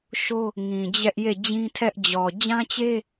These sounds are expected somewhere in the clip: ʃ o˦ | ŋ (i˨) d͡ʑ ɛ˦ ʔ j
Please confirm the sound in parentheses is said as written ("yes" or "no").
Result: no